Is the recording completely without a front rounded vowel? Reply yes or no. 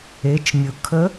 yes